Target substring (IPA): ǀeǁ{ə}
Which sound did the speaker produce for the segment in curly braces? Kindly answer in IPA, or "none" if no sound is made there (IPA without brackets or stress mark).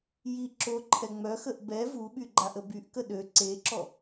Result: ɔ